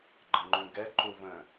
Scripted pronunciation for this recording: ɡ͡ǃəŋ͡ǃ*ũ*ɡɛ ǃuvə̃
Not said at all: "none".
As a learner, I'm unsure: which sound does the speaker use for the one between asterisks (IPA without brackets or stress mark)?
ũ